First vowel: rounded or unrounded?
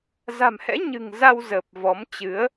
unrounded